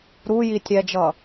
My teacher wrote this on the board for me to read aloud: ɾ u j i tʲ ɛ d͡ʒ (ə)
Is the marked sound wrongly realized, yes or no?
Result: yes